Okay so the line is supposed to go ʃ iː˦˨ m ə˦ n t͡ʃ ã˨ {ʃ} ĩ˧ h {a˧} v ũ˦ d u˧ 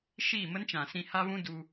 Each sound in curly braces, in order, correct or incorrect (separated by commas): incorrect, incorrect